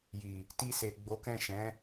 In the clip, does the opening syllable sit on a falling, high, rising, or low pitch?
low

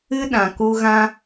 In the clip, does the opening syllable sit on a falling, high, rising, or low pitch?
high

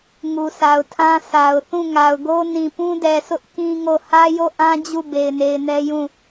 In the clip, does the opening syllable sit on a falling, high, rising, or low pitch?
low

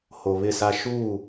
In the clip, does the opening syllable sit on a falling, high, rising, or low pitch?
low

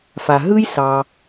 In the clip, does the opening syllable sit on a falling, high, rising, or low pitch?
low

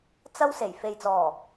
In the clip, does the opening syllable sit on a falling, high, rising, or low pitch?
high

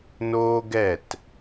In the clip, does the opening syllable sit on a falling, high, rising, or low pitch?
high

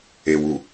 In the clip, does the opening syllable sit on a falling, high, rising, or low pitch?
low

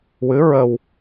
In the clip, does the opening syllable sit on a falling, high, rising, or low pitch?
rising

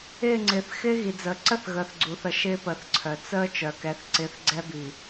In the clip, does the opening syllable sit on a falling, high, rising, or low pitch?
falling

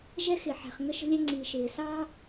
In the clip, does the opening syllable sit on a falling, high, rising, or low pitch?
high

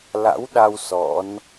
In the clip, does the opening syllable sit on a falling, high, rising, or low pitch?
rising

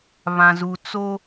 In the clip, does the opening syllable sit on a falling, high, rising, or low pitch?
low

